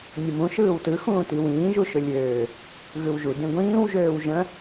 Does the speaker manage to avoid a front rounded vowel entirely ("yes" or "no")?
no